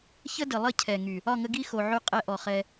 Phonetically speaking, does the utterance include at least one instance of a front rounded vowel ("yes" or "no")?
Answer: yes